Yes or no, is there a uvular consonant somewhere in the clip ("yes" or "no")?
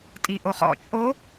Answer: yes